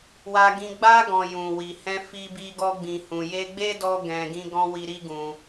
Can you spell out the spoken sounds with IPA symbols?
wa˧ɡĩ˧ ɡ͡ba˧ɡɔ̃˨ jũ˨wi˨hɛ̃˧ fi˧bi˧ɡɔ˧ ɡ͡bĩ˨hũ˨je˧ɡ͡be˦ dɔ˧ ɡɛ̃˧ɡĩ˦ɡɔ̃˦ wi˧ɾi˦ɡũ˧

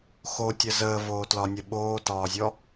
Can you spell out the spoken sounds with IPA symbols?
xotʲə zəːvoːtlɒnʲə ɓoːtɒːzʲɔ

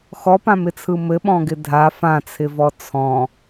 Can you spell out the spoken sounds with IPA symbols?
xɔpãmɪt͡sʰɯ mɘɓɔ̃ɡɪ dʱa fãt͡sʰɪvɔ t͡sʰɔ̃

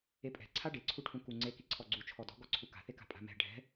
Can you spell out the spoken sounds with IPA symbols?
epʼɛ̤ ǀʰaɖeǀʰuʈʰũ kuŋ͡ǀe kiǀʰɔɡ͡ǀu t͡ʃʰɔdɔ̤ɡɔ ǀʰuka̤θeka̤ pʼa̤mɛ̤ ɖʱɛ̤

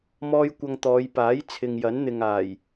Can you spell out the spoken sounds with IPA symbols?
mɔː˥jkʷɐ˧ŋt̪ɔː˨˧j paː˨˥j t͡sʰɪ˨ŋjɐ˨˥nn̪ɪ˨ŋaː˨˩j

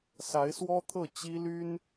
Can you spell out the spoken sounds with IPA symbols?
sa˧˥ɪ̯swɔ˥t̪ʰɤ˥˩ t͡ɕi˥ly˥n

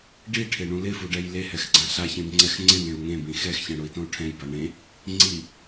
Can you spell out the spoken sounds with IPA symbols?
ɖiʈʰeɳũ lɪfuɖɛj lehɛxɡ͡ǀã ɬaçẽbŋ͡ǀɛx ŋ͡ǀɪnẽu̯ ŋẽbĩ xɛxçɛ̃ɽʊi̯tõu̯ ʈʰɛ̃jba ɳẽ | ŋ͡ǀi

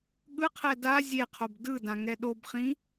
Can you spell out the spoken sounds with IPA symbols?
ɠɯqʰɛ da zʲeqʰob dɯdã ŋɛɗobχĩ

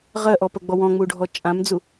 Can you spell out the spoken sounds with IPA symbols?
ʁɜʔɔpɜɡ͡bɔ wɔ̃ŋ͡muɖʱɔ t͡ʃʼãmd͡zu

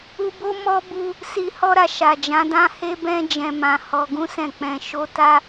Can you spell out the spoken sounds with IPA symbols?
u˧bo˦ mɔ˦ bu˧ | si˧hɔ˦ɾa˧ ʃa˨d͡ʒã˨˦dã˦ he˦bɛ̃˦ d͡ʒɛ̃˧mã˧ hɔ˧ɡũ˦sɛ̃˦˨k͡pɛ̃˧ ʃo˦ ta˦

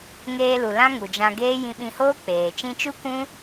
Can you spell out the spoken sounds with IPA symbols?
ŋeː˧lu˨ lã˦ŋu˨d͡ʒã˧ɡeː˦ jĩ˧ɓĩ˧hoː˦k͡peː˨ t͡ʃĩ˧t͡ʃu˦ kʷũ˦

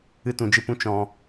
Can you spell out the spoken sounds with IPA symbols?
ɨ˦tũ˧d͡ʒɨ˦pũ˦ t͡ʃɔ̃˧

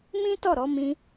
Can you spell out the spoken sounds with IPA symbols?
mĩ˦ tɔ˦˨ɾɔ˨˦ mĩ˧

